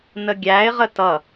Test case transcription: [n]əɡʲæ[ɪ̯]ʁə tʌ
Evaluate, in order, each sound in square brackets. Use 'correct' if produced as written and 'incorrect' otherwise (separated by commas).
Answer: correct, correct